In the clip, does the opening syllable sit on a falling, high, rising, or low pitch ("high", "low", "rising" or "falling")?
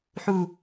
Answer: low